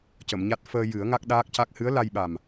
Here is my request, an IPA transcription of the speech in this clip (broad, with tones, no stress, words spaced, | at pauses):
cə˨˩˨mɲa˦˥t̚ fəː˧ jɨ˨˩˦ə̯ŋa˦˥k̚ ɗaː˦˥k̚ca˦˥k̚ hɨ˧˥ə̯ la˧jɓa˨˩m